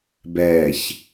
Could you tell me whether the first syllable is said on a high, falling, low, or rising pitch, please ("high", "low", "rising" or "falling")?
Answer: low